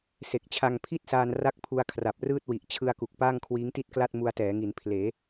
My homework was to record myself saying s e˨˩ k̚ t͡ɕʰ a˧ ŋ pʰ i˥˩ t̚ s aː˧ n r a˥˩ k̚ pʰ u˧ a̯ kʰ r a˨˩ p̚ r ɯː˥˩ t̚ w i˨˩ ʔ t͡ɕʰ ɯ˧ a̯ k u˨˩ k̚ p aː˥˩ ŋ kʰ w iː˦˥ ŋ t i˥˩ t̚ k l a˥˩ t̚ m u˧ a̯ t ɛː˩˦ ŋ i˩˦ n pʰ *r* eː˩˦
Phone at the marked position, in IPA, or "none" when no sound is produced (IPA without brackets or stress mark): l